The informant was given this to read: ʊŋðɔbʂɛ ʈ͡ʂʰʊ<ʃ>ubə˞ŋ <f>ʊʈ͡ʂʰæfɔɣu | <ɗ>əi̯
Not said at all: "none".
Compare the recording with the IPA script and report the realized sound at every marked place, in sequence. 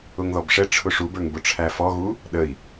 ʂ, b, ɗ

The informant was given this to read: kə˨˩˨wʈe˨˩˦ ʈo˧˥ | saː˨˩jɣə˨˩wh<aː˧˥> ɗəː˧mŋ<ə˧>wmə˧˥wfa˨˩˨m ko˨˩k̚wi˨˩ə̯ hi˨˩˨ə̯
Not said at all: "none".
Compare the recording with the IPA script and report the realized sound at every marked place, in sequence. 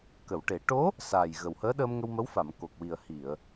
əː˧˥, ə˧

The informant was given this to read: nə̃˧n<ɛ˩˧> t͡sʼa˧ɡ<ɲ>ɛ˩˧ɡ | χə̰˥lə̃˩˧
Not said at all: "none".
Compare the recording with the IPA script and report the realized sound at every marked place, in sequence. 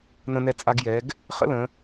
ɛ˧, j

